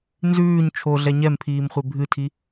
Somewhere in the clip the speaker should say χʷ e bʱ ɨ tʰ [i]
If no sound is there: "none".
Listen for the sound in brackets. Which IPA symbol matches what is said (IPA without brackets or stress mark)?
i